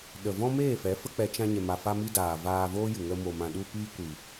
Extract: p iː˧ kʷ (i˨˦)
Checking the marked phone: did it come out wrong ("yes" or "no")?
yes